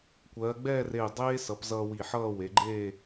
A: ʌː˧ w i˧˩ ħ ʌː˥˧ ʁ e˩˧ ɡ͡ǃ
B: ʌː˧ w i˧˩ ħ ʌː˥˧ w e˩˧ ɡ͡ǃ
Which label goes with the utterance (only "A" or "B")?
B